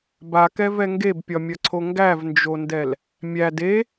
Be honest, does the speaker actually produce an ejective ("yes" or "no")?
no